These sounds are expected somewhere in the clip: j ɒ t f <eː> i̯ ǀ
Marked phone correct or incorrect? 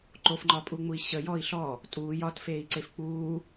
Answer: correct